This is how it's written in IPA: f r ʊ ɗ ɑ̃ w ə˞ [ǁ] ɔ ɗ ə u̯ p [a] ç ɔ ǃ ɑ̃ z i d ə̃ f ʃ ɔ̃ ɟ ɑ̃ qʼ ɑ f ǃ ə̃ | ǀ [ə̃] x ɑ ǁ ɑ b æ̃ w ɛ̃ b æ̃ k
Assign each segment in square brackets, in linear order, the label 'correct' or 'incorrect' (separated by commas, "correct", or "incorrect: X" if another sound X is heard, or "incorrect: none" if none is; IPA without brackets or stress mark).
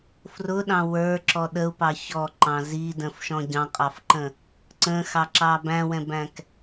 correct, incorrect: ɑ, correct